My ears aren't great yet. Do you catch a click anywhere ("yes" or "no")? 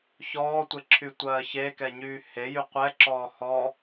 yes